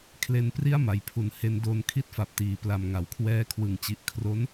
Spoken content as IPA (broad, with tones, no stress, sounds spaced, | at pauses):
kʰ l e˧ n p r i˥˩ a̯ m a˩˦ j pʰ u˨˩ n h e˧ n d o˧ n kʰ i˥˩ t̚ f a˨˩ p̚ t iː˨˩ p l a˧ m ŋ a˨˩ w kʰ w ɛː˦˥ kʰ w ɯ˨˩ ŋ t͡ɕ i˨˩ ʔ kʰ r o˦˥ n